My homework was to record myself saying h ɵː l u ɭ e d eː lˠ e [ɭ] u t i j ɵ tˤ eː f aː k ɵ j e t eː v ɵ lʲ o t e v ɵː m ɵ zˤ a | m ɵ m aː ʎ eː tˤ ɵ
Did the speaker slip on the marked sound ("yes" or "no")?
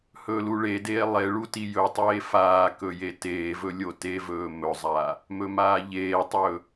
no